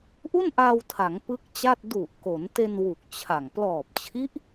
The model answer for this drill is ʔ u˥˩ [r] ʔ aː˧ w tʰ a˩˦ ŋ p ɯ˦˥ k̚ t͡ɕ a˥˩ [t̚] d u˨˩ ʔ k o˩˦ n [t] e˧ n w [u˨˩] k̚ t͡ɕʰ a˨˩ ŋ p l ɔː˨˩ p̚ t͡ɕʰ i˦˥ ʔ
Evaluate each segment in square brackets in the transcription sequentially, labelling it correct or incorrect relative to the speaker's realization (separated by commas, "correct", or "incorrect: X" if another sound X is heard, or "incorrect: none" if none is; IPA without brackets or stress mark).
incorrect: n, correct, correct, correct